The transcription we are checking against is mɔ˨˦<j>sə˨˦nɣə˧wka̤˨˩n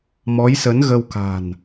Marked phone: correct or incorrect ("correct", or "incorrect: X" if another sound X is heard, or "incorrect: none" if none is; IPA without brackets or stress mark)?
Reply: correct